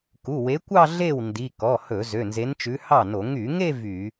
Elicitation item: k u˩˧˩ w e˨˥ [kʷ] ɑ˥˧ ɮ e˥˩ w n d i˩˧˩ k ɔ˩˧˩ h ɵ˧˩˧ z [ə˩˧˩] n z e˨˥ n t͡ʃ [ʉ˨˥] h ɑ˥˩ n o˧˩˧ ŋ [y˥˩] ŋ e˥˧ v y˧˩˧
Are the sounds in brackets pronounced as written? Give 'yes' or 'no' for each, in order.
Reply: yes, no, yes, no

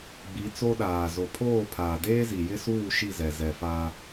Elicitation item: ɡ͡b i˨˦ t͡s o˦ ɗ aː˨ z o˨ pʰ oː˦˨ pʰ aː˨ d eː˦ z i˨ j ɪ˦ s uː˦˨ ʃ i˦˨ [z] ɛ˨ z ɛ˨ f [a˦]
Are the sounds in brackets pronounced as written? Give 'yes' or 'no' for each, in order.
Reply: yes, yes

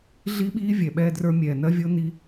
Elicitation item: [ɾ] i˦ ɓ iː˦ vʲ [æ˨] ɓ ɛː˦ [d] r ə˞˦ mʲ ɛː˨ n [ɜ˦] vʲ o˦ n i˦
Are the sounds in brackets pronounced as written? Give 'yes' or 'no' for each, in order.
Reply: no, no, yes, yes

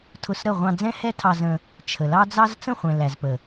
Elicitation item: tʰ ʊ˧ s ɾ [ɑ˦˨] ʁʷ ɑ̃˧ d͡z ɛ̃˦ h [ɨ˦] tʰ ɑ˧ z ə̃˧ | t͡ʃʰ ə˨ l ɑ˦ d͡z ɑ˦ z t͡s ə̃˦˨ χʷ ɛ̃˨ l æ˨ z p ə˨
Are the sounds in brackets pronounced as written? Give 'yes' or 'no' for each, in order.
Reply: no, no

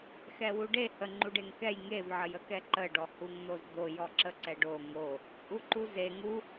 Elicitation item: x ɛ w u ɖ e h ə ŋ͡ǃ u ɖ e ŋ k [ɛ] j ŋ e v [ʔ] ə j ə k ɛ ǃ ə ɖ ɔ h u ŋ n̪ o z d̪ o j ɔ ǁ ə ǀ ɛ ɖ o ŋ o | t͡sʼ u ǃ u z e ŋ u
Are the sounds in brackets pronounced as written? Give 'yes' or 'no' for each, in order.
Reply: yes, no

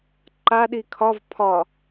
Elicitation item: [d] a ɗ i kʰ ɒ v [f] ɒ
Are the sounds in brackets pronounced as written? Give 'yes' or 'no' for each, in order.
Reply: no, no

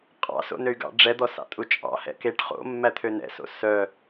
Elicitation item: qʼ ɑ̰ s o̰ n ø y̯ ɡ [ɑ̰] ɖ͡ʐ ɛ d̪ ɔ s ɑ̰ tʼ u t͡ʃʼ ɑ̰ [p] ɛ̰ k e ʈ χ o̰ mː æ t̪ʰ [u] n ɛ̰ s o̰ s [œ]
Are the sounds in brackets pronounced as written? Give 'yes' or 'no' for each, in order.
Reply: yes, no, no, yes

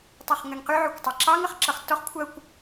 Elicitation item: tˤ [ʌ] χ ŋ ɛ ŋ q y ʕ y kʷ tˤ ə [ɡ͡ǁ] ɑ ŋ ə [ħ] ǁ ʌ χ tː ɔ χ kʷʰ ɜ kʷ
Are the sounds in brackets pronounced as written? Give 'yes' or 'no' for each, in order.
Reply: yes, no, no

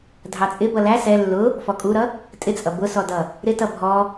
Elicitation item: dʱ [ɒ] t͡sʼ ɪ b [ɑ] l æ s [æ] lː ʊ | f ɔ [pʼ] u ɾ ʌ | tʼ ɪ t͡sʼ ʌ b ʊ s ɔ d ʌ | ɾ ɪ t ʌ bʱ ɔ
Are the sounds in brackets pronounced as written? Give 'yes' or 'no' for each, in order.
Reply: no, no, no, no

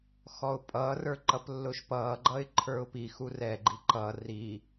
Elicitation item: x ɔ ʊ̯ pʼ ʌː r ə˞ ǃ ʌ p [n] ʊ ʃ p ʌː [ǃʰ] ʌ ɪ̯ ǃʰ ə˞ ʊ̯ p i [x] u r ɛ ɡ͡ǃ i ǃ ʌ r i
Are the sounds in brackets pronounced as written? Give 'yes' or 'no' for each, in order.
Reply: no, no, yes

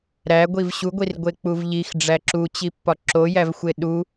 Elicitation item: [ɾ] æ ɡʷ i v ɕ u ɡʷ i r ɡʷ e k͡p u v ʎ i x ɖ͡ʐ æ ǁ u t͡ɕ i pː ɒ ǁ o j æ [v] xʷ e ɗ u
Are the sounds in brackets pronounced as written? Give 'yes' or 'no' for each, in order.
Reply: yes, yes

